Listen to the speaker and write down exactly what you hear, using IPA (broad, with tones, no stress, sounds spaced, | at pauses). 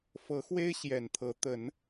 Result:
f ɤ˨˦ x w e˦ ɪ̯ ɕ j ɛ˨˩ n t̪ʰ ɤ˨˦ t̪ ə˨˦ n